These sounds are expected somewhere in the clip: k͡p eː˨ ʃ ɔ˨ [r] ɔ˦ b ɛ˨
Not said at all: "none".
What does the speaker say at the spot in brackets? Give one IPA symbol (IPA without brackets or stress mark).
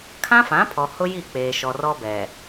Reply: r